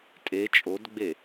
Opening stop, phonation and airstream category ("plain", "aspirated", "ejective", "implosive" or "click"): ejective